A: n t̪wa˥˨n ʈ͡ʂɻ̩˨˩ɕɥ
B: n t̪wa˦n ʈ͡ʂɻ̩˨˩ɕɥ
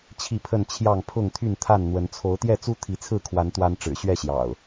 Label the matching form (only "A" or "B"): B